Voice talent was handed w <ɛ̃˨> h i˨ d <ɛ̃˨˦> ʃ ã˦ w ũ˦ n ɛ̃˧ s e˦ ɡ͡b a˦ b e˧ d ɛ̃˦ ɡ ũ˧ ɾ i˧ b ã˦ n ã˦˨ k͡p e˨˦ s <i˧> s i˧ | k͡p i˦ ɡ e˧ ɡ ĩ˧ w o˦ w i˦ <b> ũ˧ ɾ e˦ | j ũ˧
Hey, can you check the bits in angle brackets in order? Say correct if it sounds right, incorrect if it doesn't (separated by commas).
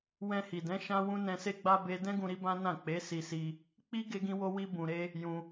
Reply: incorrect, correct, correct, correct